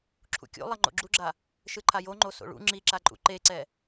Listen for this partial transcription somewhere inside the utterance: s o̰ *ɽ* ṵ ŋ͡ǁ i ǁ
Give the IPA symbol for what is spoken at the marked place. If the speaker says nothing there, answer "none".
ɭ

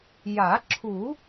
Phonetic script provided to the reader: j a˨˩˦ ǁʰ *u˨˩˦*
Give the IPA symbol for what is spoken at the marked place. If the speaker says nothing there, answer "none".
u˨˩˦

